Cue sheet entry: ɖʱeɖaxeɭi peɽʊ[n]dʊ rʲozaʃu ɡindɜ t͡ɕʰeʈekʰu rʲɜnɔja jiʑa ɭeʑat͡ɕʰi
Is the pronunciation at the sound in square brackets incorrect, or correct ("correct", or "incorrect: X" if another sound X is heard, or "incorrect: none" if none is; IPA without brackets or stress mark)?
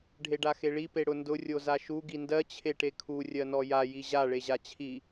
correct